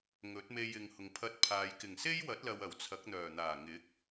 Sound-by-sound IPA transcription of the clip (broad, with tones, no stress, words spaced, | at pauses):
ŋɵ˨˥t̚me˧jɪ˨ŋhʊ˨ŋ pʰɐ˧t̚ pʰaː˨j kɪ˨˩ŋse˥jwɐ˨˥t̚ lɐ˧wɐ˨˩wt͡sʰɐ˨˥k̚n̪œː˨˩ n̪aː˨˩ŋɪ˨˥k̚